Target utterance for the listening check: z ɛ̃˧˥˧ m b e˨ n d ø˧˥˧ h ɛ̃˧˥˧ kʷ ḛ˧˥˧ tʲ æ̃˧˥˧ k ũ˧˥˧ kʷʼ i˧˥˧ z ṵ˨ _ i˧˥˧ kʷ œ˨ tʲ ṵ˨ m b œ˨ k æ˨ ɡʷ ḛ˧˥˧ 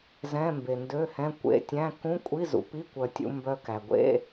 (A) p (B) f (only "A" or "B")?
A